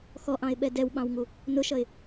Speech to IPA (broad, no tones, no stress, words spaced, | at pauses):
xɔʔɑ̃ɪ̯ɓɛ dɛwɓɑ̃wŋu | nʊʃʌɪ̯